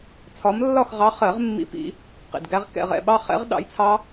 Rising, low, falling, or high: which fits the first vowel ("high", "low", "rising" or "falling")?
rising